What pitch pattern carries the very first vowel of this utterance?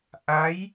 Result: rising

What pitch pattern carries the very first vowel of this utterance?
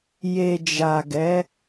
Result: low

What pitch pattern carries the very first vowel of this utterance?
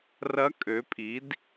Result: rising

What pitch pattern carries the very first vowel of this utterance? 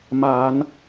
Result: low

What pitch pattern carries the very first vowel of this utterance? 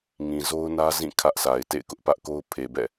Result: low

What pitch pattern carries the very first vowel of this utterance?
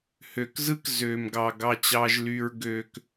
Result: low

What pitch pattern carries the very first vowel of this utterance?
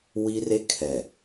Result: high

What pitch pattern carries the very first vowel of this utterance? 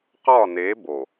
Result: falling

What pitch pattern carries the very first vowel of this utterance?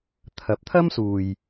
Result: rising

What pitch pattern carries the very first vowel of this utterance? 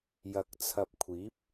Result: low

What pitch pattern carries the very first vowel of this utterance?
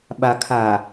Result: low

